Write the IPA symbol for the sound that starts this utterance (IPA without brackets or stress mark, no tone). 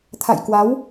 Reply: t̪ʰ